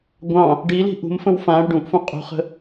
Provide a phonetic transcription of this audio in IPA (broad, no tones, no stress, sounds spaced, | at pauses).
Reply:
ɡʷ ɑ̃ | ɖ i l i̤ ʔ ṳ m f ə̃ w f ã ɽ ə ɖ ũ ʔ f ũ qʼ ṳ χ ə̤